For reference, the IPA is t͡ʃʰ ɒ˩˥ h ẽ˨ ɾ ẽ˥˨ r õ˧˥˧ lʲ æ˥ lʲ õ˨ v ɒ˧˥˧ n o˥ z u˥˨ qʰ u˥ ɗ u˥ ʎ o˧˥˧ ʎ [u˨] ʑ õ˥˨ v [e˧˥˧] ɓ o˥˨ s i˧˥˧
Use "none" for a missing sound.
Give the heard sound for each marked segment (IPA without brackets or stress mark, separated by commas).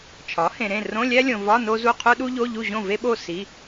u˥˨, e˥